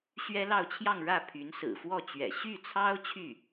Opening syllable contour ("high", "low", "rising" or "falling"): high